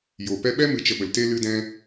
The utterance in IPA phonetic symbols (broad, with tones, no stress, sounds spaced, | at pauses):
j o˨ p ɛ˦ ɓ ɛ˦ m ɨ˧ t͡ʃ ə˧ ɓ ə˨ l t e˦ l ɨ˦ d ɛ̃˦